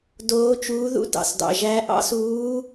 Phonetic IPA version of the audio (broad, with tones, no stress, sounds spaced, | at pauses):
d oː˧˥ t͡ʃ uː˧˥ ð ṵ˧˥ d ɑ̰˩ s d ɑ̰˩ ʒ æ˧˥ ʔ ɑ̰˧˥ s uː˧˥